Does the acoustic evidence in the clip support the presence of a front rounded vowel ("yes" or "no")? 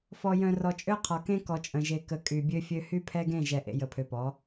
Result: yes